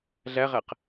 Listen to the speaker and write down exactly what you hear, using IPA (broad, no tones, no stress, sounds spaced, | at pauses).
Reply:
ɮ æ ʁ æ q